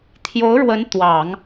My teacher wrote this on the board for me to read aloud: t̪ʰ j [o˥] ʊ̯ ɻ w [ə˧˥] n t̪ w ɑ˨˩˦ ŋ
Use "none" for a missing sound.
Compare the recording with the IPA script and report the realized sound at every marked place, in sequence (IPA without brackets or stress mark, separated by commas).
o˧˥, ə˧˥